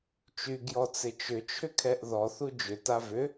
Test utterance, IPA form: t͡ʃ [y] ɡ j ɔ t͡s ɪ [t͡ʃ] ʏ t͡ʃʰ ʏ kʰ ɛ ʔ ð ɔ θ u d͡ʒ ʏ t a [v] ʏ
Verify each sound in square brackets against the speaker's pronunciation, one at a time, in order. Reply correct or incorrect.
correct, correct, correct

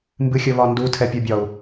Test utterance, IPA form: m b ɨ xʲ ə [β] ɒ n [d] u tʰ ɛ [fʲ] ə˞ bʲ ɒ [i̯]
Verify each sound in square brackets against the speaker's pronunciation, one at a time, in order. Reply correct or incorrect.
correct, correct, incorrect: pʲ, incorrect: u̯

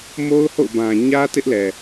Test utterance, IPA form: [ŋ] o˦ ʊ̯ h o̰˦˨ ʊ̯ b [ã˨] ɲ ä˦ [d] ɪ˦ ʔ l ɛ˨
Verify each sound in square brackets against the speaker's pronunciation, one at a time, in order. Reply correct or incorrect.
incorrect: m, correct, incorrect: t

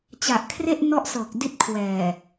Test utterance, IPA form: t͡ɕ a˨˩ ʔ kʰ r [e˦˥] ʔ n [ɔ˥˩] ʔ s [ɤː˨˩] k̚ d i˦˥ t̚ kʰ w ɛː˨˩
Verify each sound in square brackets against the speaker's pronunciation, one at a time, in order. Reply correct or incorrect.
incorrect: e˥˩, incorrect: ɔ˦˥, correct

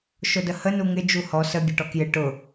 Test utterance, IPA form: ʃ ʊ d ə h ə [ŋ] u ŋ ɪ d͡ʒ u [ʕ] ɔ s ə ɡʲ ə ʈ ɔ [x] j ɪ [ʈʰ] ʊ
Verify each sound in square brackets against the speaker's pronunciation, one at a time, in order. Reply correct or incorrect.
incorrect: n, incorrect: h, incorrect: k, incorrect: ʈ

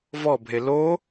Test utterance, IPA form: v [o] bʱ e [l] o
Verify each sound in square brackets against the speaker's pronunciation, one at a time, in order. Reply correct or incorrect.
incorrect: ɔ, correct

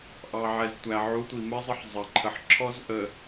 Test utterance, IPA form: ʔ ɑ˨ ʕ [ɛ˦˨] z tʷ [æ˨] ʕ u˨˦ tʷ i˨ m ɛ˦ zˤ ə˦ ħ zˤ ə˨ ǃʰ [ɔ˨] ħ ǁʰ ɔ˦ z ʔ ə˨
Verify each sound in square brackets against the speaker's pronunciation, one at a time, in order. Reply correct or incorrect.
incorrect: ɛ˨, correct, incorrect: ə˨

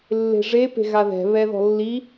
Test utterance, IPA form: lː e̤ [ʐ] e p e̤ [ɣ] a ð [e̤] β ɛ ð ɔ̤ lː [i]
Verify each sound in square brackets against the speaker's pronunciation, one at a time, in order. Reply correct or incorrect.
correct, correct, incorrect: ɛ̤, correct

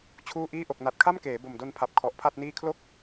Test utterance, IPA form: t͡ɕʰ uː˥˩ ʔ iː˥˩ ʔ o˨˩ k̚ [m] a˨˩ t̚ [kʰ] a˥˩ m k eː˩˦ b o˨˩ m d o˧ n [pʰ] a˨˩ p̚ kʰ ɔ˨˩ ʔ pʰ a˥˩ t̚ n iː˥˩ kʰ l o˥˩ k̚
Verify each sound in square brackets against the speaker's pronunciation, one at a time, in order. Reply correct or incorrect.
incorrect: n, correct, correct

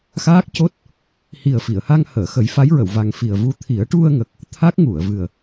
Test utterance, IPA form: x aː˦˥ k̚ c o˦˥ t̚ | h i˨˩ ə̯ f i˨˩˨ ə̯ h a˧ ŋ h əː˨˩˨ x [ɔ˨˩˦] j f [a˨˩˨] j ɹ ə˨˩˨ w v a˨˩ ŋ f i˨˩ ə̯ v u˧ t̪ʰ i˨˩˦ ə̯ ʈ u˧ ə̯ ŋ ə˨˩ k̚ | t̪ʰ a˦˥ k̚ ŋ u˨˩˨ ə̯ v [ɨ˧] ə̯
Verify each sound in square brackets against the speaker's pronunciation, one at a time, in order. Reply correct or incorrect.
incorrect: ə˨˩˦, incorrect: a˧˥, incorrect: ɨ˨˩

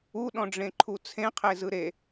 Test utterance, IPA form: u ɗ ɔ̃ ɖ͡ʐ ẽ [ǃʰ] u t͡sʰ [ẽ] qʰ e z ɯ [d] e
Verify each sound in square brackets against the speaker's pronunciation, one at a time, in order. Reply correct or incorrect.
correct, correct, incorrect: ɾ

